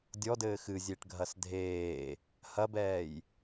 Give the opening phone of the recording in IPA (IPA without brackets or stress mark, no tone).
dʲ